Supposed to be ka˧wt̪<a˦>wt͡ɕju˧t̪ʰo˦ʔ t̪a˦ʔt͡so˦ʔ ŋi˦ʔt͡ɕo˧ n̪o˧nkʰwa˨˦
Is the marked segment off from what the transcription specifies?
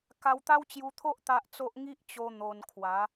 no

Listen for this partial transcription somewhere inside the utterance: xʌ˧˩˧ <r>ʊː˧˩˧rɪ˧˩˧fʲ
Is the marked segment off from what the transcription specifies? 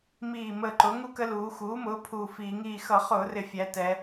yes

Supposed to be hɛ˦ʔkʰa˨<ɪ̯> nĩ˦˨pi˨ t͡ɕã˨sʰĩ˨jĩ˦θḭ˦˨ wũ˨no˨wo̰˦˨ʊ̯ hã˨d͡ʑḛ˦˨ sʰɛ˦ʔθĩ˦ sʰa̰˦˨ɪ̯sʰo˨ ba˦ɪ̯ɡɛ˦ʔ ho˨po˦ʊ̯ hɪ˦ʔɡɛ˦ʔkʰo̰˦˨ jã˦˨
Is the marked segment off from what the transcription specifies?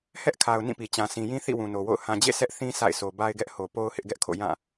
yes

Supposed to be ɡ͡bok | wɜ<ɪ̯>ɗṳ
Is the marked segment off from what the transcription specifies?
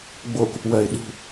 no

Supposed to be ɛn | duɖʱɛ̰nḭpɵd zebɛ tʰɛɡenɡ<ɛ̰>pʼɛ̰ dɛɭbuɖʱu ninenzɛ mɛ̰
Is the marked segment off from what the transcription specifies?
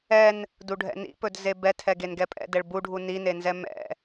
yes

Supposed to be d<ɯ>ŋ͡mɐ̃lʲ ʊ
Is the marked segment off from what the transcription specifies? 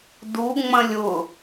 yes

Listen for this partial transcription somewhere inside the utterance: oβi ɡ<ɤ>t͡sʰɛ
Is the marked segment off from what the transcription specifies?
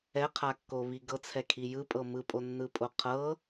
no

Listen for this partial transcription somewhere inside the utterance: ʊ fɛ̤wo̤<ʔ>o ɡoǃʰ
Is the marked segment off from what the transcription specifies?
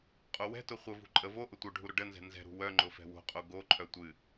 yes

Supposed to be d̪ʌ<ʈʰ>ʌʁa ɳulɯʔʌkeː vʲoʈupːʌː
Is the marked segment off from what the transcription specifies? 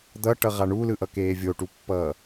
yes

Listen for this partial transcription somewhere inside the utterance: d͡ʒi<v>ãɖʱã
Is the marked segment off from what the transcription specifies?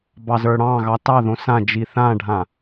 yes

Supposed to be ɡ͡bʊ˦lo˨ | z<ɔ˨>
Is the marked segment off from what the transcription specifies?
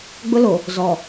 no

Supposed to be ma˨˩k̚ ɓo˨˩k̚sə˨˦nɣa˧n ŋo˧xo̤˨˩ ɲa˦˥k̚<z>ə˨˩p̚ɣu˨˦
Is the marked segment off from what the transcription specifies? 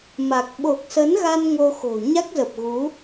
no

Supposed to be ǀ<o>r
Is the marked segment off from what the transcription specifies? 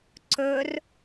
yes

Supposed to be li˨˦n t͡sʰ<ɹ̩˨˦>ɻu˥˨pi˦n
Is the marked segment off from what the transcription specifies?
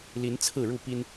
yes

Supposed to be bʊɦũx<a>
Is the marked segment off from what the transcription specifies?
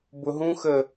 yes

